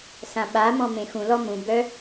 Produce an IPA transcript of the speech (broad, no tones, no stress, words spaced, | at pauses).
sãɓamɔ̃ mẽxũlɔ mũbœ